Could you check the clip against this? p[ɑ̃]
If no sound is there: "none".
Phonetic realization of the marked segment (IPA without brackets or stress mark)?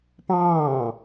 ɑ̃ː